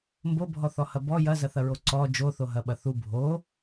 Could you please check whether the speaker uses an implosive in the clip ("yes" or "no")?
yes